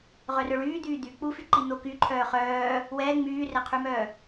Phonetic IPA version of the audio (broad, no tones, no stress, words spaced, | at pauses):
ʁœrœɭyːd̪yː d̪yk͡pufyǃi n̪oky ǃʰœːχœː | wɛ ŋ͡myːrɛqʰymœː